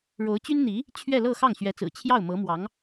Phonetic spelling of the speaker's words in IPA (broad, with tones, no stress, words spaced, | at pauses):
ɻo˧˥ʊ̯ t͡ɕy˥nn̪i˧˥ | t͡ɕʰɥɛ˥˧lɤ˥˧xɑ˥˩ŋ ɕɥɛ˧˥t͡sɹ̩˨˩ t͡ɕʰjɑ˥˩ʊ̯ mɤ˧˥mwɑ˧˥ŋ